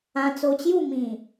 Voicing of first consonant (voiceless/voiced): voiceless